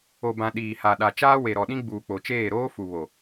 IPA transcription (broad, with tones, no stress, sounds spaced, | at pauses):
o˨ b ã˨ ɗ iː˨ h a˨ ɗ a˨ t͡ʃ aː˦ w e˨ ɾ ɔ˨ ɗ ĩ˦ ɡ͡b uː˨ k͡p o˨ t͡ʃ eː˦˨ ɾ oː˦ f u˨ β o˨